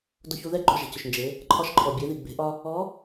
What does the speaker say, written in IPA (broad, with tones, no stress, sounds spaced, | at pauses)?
d o˧ ç u˧ ð ɛ˥ ɡ͡ǃ o˧ ʒ ɛ̤˩ c ʏ˩ ʃ n d͡ʒ e˩˧ | ǃʰ ɒ˧ ʃ ǃʰ ɔ˩ bʲ e˩˧ ð i˩ ɡ͡b e̤˩˧ ʔ ɒ˧ | ɔ˧˥